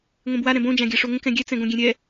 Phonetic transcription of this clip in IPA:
ŋʷ ẽ b w a ɾ ɛ̃ b õ d͡ʒ ã ɡʲ ɜ ʂ o ŋ ə̃ k ɛ̃ ɡʲ ɛ t͡s ɛ̃ ɡ õ ɡʲ ẽ ɾʲ ɛ

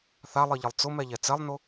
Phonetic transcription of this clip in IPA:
θ a lˠ i ʎ ɪ lˠ t͡s ʊ m ɛ ʎ ɛ t͡s ɛ lˠ n ʊ

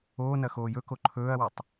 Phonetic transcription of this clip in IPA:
oː n ɐ x oː j ɵ k o ǃʰ ɵː ɐ̯ w ɐ tˤ

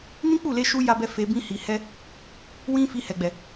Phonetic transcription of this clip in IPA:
n ĩ˦ k͡p u˦˨ l e˧ ʃ u˧ j a˦ b ɛ˦ f e˧ b ĩ˧ h i˨ h ɛ˧ | w ĩ˦ f i˧ h ɛ˨ ɡ͡b ɛ˨

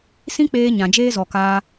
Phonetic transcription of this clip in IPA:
s ĩ˦ k͡p eː˧ ɲ ã˨ d͡ʒ eː˦ z ɔ˨ k aː˧

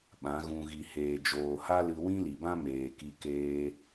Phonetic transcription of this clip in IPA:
ɓ ã˨˦ ɣ ũ˧ ɣ i˨ h eː˨ d͡ʒ oː˨ h a˦ l ɨ˧ w ĩ˦ l i˨ b ã˦ m eː˨ k i˧ k eː˧

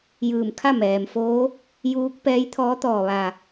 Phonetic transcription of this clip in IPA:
j ɯː˧˩ m kʰ a˥˨ m ɛː˩ m f oː˧˥ | j uː˧˥ k̚ p ɛː˧˥ j t̪ʰ ɔː˧˥ t̪ ɔː˧˩ ʋ a˧˩

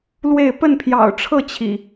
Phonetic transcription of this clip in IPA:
l w e˥˨ ɪ̯ p ə˥˨ n pʰ j ɑ̰˨˩ ʊ̯ ʈ͡ʂʰ ɤ˥˨ t͡ɕʰ ḭ˨˩

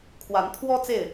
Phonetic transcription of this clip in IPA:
kʰ w a˨˦ n t̪ʰ w ɔ˦ t͡s e˥˨ ɪ̯

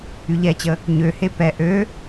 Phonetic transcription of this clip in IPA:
y ʎ ɛ t͡ɕ ə | ɲ ø h e p ɛ ʔ ø

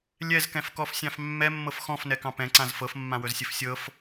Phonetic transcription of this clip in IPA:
lʲ ɛ z k ɛ̃ f k ɔ f sʲ ɑ̃ f mː ɛ mː ɤ f x ɔ̃ f n ɛ k ɑ̃ p ɛ̃ ǀ ã z f ɤ f mː ã w ɵ z sʲ ɘ f sʲ ɤ f

